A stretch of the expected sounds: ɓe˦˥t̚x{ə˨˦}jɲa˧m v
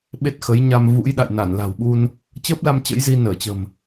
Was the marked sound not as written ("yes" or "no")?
no